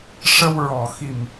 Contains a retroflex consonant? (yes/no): yes